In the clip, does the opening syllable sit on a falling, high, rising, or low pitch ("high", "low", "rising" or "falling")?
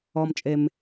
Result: low